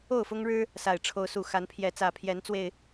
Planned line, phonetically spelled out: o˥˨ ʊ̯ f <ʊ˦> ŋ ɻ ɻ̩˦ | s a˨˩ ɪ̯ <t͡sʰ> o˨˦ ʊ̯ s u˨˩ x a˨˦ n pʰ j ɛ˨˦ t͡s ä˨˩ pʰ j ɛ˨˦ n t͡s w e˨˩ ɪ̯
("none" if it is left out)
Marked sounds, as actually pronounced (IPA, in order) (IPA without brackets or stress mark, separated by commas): ʊ˦, ʈ͡ʂʰ